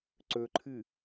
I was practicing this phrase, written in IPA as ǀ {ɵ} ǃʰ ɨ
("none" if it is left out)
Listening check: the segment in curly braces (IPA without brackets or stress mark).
ɵ